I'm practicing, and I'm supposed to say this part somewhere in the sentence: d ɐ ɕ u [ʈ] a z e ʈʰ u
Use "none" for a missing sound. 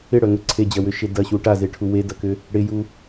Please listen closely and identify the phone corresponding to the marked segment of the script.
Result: ʈ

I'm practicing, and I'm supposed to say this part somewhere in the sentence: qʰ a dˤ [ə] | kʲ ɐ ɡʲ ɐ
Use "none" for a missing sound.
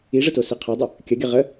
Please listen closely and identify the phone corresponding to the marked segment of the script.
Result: ə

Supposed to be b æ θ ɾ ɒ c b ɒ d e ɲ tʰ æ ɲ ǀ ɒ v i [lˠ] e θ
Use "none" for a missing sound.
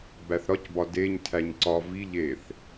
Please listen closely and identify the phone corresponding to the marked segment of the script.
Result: ʎ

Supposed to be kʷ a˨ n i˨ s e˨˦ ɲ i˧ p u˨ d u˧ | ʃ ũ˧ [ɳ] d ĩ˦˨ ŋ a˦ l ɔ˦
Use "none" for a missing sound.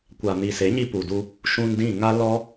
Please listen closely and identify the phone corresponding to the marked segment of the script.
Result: n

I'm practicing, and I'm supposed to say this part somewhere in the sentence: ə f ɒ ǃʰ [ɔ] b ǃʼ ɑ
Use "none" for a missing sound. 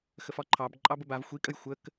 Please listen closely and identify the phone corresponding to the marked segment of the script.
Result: ɑ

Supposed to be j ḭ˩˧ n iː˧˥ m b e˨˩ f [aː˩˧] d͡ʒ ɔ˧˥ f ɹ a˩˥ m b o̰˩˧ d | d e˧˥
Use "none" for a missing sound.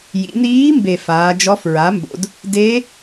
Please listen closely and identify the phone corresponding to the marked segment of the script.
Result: aː˩˧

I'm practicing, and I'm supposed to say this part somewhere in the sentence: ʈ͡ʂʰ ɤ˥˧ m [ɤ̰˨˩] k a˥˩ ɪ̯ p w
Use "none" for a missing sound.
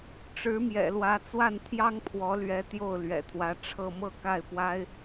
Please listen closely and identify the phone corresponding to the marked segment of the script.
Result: ɤ˥˧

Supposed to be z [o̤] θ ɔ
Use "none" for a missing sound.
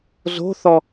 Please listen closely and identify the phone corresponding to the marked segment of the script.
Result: o̤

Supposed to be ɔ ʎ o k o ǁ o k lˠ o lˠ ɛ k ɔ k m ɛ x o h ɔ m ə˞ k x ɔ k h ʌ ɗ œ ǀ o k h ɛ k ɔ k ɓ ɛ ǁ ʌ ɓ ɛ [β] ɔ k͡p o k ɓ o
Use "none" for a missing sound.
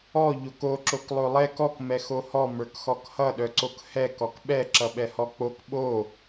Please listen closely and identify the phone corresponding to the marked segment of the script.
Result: h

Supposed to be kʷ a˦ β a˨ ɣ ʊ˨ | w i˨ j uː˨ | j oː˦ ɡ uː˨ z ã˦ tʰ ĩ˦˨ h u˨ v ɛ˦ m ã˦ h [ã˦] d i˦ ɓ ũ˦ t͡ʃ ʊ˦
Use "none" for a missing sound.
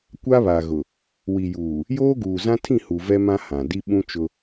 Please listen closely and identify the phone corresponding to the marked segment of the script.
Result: ã˨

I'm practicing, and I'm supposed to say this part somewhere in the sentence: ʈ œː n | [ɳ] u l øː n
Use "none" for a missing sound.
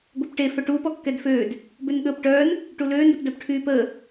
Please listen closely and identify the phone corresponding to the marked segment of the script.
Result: ʈ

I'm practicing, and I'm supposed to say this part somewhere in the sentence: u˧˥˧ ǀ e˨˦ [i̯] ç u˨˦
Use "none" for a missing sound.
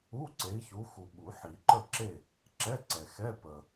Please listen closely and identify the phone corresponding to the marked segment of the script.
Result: i̯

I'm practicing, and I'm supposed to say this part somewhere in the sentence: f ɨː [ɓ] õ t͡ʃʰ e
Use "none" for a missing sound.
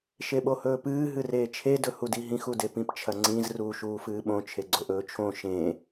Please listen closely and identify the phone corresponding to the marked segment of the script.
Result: ɓ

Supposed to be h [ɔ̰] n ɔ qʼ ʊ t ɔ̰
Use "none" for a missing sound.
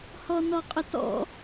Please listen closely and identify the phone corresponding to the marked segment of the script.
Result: ɔ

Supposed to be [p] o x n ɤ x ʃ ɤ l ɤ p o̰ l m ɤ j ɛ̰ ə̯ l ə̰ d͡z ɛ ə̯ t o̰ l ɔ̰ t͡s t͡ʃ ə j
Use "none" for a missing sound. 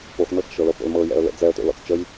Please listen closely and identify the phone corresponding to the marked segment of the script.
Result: p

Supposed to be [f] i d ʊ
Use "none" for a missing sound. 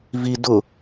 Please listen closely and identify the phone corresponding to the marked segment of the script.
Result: v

